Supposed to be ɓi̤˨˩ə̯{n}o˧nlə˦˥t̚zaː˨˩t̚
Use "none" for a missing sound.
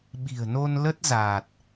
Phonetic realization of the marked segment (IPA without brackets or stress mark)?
n